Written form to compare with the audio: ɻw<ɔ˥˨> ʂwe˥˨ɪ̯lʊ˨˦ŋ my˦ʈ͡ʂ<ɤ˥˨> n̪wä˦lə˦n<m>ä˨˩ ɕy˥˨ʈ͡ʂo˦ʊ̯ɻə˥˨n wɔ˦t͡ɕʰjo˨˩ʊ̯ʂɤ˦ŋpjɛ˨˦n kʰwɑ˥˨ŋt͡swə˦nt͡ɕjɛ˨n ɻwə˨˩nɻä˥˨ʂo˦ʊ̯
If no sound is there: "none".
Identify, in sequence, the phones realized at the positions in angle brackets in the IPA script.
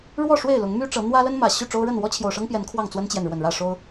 ɔ˥˨, ɤ˨˦, m

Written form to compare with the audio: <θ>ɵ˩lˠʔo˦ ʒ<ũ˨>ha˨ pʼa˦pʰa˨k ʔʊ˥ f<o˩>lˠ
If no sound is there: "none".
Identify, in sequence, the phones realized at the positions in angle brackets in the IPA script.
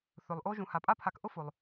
θ, ũ˨, o˩

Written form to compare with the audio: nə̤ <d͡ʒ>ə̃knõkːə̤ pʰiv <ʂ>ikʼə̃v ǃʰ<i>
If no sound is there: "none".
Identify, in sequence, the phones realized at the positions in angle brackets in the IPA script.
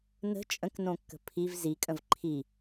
t͡ʃʼ, z, i

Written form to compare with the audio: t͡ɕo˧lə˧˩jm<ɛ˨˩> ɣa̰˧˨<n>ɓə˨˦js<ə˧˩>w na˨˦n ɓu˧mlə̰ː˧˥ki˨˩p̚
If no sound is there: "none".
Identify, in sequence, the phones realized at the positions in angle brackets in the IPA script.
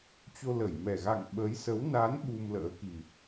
ɛ˨˩, ŋ, ə˨˦

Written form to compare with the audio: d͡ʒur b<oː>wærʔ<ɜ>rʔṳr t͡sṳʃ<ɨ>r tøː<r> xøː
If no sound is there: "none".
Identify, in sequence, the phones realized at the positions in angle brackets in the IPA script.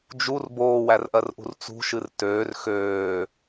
oː, ɜ, ɨ, r

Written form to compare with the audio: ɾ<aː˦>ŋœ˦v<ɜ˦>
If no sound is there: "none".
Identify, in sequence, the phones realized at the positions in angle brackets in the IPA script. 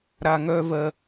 a˦, ɜ˦

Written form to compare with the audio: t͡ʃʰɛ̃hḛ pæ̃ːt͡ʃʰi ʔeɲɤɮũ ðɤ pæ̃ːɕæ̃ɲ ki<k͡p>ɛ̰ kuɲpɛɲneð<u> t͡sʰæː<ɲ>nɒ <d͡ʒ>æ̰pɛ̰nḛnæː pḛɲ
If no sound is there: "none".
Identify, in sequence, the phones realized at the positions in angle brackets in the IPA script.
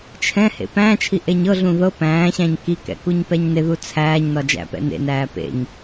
k, u, ɲ, d͡ʒ

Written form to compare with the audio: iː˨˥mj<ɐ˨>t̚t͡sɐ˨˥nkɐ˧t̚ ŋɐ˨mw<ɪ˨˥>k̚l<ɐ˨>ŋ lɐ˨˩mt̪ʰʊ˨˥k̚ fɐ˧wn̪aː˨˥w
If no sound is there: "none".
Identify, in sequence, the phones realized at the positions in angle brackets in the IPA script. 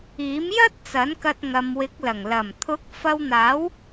ɐ˥, ɪ˨˥, ɐ˨˩

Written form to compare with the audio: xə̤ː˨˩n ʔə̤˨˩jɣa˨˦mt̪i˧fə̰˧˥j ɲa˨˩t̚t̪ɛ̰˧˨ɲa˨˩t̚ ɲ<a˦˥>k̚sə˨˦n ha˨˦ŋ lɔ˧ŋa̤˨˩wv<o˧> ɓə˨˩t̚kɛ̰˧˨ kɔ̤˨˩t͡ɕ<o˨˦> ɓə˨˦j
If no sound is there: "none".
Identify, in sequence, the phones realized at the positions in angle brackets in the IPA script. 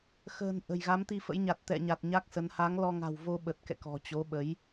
a˦˥, o˧, o˨˦

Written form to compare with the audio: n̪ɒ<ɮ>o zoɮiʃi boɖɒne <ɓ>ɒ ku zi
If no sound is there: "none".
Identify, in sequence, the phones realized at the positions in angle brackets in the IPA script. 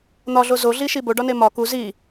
ɮ, m

